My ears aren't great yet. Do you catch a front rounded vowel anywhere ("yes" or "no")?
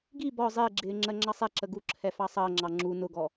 no